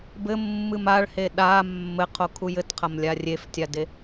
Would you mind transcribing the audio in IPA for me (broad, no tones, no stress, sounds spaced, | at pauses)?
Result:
b ɘ mː ɨ m a ɭ h e ɗ a mː ɘ qʰ o kʰ u j ɘ t qʰ ɐ m lʲ a rʲ e f tʲ a d e